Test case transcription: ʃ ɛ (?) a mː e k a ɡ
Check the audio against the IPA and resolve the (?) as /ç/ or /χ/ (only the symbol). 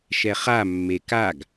χ